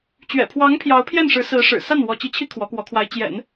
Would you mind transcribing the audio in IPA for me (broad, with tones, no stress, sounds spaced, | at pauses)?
t͡ɕ ɥ ɛ̰˨˩ pʰ w ɑ˧˥ ŋ pʰ j ɑ˧˥ ʊ̯ pʰ j ɛ˥˩ n ʂ ɻ̩˧˥ s ɹ̩˧˥ ʂ ɻ̩˨˩ s a˥˩ n w ɔ˧˥ t͡ɕ i˧˥ t͡ɕʰ i˥ kʰ w ɔ˧˥ k w ɔ˧˥ kʰ w a˧˥ ɪ̯ t͡ɕ j ɛ̰˨˩˦ n